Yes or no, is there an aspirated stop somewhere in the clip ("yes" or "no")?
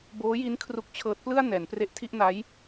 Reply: yes